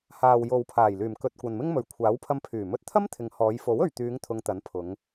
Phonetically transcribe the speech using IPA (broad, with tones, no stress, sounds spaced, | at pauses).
h aː˨ w j o˨ w pʰ aː˨˩ j l yː˨˩ m k ɵ˨ t̚ kʷ ɐ˨ n m ɪ˥ ŋ m ɵ˨˥ ɥ kʷʰ aː˨˥ w pʰ ɐ˧ m pʰ yː˨˩ m ɵ˧ t̚ t̪ʰ ɐ˥ m t̪ʰ ɪ˨˧ ŋ h ɔː˨˧ j f o˨˥ w ɵ˨ ɥ t̪ yː˨˧ ŋ t̪ʰ ʊ˨˧ ŋ t̪ ɐ˨˥ n pʰ ʊ˨˧ ŋ